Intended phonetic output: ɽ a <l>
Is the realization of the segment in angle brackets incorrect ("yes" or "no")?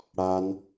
yes